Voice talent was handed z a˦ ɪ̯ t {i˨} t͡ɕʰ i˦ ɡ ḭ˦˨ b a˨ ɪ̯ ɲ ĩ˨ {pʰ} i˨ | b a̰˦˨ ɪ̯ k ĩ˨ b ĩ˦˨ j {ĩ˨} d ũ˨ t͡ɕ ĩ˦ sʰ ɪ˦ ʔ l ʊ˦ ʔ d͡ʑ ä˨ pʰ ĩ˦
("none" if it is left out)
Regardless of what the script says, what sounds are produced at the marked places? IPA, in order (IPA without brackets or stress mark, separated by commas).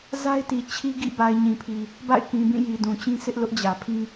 i˨, pʰ, i˨